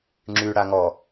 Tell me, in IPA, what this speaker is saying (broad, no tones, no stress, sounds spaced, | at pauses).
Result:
ŋ͡ǁ y ɽ a ŋ ɔ